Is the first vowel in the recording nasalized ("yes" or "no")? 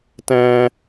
yes